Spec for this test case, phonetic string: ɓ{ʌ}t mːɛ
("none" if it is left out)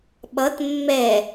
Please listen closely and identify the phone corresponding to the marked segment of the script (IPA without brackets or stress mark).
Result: ʌ